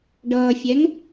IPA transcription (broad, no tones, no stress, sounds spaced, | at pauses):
ɖ ʌː fʲ ɛ ŋ